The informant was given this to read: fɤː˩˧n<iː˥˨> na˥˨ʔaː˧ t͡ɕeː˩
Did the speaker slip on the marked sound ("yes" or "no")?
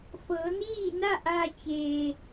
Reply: no